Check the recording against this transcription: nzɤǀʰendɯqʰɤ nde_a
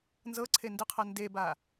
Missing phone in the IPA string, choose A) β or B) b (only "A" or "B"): B